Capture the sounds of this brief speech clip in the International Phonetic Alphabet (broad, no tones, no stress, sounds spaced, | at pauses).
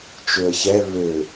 t͡ʃ ø ə̯ ç ɛ β ø